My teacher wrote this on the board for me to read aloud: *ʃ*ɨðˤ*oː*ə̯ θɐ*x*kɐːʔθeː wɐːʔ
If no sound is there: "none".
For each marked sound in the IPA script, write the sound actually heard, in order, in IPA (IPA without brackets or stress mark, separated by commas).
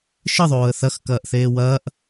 ʃ, oː, x